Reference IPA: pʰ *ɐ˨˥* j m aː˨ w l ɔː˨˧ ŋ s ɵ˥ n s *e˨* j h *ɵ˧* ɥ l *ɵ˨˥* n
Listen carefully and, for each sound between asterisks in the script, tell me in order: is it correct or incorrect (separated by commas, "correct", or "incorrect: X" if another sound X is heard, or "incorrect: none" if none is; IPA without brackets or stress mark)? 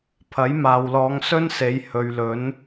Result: correct, incorrect: e˨˧, incorrect: ɵ˨, correct